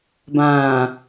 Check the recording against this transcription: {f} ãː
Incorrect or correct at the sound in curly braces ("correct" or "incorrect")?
incorrect